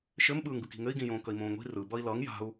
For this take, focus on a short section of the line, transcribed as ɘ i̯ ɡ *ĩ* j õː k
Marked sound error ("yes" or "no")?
no